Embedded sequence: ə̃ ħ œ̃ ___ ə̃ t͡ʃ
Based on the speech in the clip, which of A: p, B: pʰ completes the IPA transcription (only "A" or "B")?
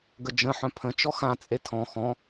B